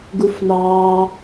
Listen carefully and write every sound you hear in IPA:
ɡufnɑː

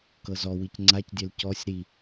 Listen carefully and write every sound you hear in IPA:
kɤzɔwic ŋ͡ǀacdʲɛl cɔsʲ ɾi

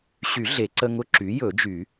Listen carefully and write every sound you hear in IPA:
ɕy˨˩˦ ɮe˨˩˦ǀə˦ ŋʊ˦ǁy˩˥ jɵ˨˩˦d͡ʒy˨˩˦

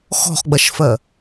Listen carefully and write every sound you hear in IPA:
xɔ̤χɡ͡bɐʃfɜ

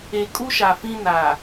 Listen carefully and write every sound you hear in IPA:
e˨kʼu˦ʃa˨ fĩ˦na˨

